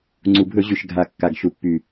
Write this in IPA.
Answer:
ŋ͡ǀ u˨˩ bʱ ɵ˧˩˧ ʑ y˨˩ ʃ ɡʱ a˨˩ kː a˨˩ ɡ ʃ u˨˩ pː y˨˩

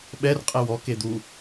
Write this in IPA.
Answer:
ɓ ɛ r qʼ ɛ w ɔ k e d̪ u

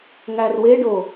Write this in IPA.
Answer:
ŋ æ r w e ɖ o

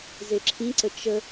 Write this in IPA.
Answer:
z e ǁʰ ĩ ǀ ə t͡ʃ ə

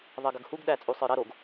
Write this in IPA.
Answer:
ðˤ ɜ ɡ ɐ ɡ h u ɡ ɗ æ t͡sʼ u sˤ ə˞ ɾ ɐ ɾ o ɡ

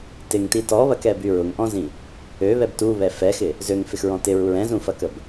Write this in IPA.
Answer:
t ɪ ŋ t i t ɔ β ɐ k ɛ b y ɹ ʊ ŋ ʔ ɔ̃ z ĩ | ø β ɛ b t u β ɛ f ɛ x ɪ | z ø ŋ f ɪ x ɹ ɔ̃ t ɪ ɹ u ɹ ɛ̃ z ũ f ɐ k ə b

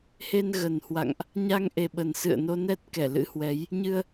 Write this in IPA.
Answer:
h e˧ n ɣ ə˨˩ n h w a̰˧˨ ŋ ʔ | ɲ a˧ ŋ ʔ e˨˩ ɓ ə˨˩ n s ɨ̰˧˨ ə̯ n o˧ n ɛ˦˥ t̚ k ɛ˧˩ l ɨ̰˧˥ h w ɛ˨˦ j | ɲ ɨ˧ ə̯

